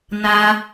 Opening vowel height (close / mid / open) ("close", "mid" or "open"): open